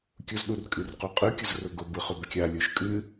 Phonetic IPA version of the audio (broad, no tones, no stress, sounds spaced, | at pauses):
kʲ ʊ z ɗ u r kʼ ɨ r q u qʼ ɯ kʲ ʊ z r ʊ ɡ ʊ b ɯ χ ʊ b kʲ a lʲ u ʃ kʼ ɨ